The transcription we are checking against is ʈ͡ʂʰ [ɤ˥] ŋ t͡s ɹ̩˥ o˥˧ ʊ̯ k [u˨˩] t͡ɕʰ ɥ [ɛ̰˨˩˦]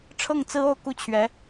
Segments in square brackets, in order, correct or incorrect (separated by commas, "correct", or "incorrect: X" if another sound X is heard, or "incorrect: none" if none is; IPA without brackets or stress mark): incorrect: ɤ˥˩, incorrect: u˥˩, incorrect: ɛ˧˥